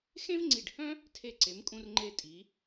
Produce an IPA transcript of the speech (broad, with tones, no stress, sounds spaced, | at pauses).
x ẽ˥ v ŋ͡ǀ i˧˩ ɖ h œ̃˥ | tʰ e˧˩ ǀ e˩˧ m kʼ ũ˧ r ŋ͡ǃ e˧ tʼ i˩˧